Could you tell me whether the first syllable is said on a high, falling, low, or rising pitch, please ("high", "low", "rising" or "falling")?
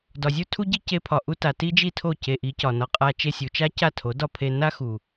low